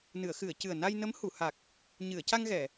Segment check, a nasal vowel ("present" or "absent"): absent